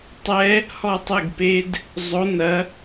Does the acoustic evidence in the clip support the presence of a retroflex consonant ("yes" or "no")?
no